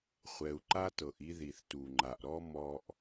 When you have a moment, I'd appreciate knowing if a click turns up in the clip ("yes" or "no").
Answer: yes